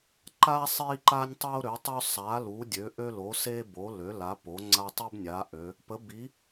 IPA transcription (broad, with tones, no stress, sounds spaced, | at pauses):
ǃ a˦ sˤ i˦ ǃ a˦ nʲ tˤ o˦ ɾ ø˨˦ tˤ ø˦ sˤ a˨˦ l u˨˦ dʲ ø˨˦ ʔ ø˦ l o˨˦ s e˦ b o˨˦ l ø˨˦ l a˨˦ p o˨˦ ŋ͡ǀ a˦ tˤ i˦ b nʲ a˨˦ ʔ ø˨˦ | p ə˨˦ b i˨˦